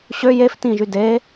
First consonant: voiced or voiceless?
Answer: voiceless